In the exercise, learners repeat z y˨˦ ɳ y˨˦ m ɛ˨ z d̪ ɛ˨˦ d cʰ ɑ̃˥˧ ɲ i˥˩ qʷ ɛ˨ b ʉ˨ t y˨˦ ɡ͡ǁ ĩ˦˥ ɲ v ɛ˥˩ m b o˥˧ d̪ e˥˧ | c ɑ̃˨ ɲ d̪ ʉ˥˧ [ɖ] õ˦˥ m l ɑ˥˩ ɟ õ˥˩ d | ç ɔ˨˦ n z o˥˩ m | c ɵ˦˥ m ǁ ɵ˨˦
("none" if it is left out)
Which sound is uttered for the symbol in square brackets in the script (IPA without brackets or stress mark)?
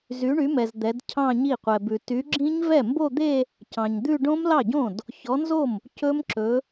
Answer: ɖ